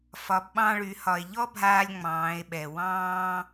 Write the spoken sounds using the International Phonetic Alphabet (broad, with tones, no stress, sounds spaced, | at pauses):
f ɒ˩˧ b ɓ ɑ̃˧ ɭ y˩˧ h ɒ˩ e̯ ʎ ɔ˥ bʱ aː˧ lʲ ŋ͡m ɑ̃ː˩˧ e̯ ɓ ɛ˩ w ɑ̃ː˥